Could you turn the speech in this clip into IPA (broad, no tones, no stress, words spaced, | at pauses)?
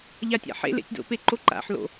ʎatʲa̰ħḛ lḛtʲdo̰pe ǃoǃa̰ħlo̰